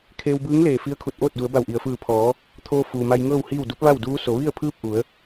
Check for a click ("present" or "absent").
absent